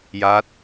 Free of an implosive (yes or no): yes